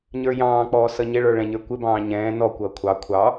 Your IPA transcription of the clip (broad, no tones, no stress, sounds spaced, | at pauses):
ɲ ə˞ j ɑ̃ː k͡p ɔː s ʌ ɲ ɪ ɭ ə˞ ɭ ɛ̃ ɲ ə˞ kʷ ɪ b ɑ̃ː ɲ ɛ̃ː n ɔ kʷ ʌː kʷʰ ɑ kʷʰ ɑ